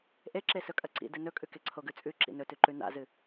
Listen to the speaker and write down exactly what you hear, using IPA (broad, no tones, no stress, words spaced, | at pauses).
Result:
ʔeǁe sɵkʼɐǀḭ dɨnɵkʼʉ keǀʰoɡʉt͡sʼʉ ǁḭnɵtʉǃʉ na̰zɨ